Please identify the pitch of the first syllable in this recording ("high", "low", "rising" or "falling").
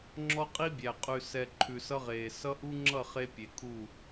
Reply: high